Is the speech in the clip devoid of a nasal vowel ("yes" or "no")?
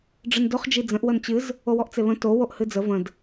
no